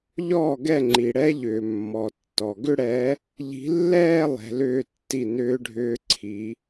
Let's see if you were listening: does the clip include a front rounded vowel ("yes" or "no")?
yes